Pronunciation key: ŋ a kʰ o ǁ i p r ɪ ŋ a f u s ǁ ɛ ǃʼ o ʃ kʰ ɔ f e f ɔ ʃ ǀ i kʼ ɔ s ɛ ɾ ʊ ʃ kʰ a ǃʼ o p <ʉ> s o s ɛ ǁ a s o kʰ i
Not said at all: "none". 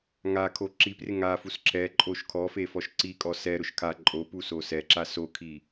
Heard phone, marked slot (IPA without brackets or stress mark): u